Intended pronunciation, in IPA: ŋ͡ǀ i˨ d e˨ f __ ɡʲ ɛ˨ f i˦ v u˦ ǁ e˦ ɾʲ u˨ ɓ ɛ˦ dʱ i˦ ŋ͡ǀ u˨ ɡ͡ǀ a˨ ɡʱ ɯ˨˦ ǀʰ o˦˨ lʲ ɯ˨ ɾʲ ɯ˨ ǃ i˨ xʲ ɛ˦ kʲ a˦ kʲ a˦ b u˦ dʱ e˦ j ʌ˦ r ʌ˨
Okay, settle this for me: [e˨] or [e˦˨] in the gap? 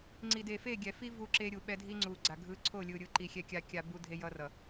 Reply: e˦˨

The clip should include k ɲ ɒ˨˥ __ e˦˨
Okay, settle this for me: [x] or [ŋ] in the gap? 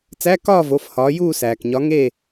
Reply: ŋ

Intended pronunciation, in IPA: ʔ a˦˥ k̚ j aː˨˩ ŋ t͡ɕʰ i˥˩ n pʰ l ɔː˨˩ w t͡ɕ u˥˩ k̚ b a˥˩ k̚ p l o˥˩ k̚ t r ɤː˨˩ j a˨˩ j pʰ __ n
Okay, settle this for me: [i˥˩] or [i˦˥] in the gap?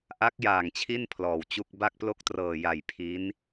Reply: i˦˥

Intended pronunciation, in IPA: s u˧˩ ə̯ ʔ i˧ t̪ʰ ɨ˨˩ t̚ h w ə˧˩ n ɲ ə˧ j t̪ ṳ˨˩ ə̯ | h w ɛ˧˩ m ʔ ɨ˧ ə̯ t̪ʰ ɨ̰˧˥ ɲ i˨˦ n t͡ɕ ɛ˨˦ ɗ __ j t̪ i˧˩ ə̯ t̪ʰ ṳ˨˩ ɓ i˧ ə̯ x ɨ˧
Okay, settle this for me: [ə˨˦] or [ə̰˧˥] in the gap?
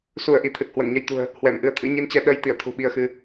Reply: ə˨˦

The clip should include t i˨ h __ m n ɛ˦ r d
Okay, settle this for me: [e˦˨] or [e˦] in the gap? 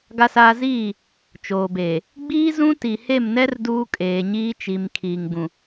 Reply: e˦˨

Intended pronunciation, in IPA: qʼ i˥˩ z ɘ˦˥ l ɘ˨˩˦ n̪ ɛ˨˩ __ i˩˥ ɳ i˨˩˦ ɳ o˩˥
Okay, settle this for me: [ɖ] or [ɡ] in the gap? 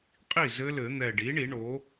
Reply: ɖ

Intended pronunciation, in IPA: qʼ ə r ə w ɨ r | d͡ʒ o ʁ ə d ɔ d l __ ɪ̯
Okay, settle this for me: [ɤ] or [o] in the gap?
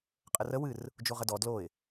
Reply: o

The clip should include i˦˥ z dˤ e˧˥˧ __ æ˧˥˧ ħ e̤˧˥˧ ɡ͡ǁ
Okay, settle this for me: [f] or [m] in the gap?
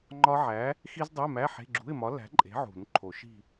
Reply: m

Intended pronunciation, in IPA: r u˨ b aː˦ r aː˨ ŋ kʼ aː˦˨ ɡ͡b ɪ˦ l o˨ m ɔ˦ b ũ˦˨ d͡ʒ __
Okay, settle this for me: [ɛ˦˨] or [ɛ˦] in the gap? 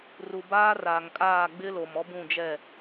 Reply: ɛ˦˨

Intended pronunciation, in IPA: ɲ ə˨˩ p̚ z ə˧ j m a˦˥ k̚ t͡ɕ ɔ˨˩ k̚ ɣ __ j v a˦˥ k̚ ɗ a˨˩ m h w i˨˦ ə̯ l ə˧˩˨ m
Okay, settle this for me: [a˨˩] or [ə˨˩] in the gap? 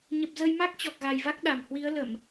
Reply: a˨˩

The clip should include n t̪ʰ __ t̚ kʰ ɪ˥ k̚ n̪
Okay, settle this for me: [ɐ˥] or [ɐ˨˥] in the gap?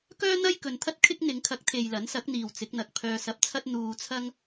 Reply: ɐ˥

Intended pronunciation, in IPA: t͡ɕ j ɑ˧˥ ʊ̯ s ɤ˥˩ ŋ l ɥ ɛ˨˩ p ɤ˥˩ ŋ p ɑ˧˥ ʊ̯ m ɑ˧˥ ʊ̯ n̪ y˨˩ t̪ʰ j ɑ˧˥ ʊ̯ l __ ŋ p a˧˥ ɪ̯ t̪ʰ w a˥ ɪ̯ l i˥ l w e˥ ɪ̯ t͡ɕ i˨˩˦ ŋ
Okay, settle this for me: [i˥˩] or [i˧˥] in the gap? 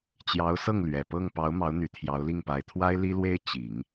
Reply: i˥˩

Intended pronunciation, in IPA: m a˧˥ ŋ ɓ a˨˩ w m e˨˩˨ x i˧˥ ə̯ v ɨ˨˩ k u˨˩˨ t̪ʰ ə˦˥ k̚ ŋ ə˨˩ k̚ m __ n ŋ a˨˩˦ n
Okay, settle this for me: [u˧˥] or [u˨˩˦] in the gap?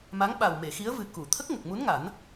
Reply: u˧˥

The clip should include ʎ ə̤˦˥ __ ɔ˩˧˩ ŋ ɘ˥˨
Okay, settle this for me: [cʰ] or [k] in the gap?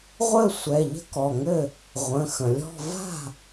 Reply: k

